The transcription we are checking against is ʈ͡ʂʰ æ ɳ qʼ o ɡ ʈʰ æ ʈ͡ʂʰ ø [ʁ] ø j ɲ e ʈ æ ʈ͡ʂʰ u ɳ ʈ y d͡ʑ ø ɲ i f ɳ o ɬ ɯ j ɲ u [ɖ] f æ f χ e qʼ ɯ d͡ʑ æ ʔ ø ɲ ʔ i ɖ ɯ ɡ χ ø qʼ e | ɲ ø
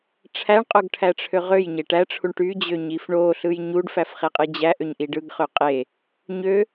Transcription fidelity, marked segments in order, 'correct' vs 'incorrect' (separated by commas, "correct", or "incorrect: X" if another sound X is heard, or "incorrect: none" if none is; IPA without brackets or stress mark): correct, correct